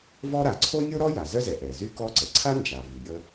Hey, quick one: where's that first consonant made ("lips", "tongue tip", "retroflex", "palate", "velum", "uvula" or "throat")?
lips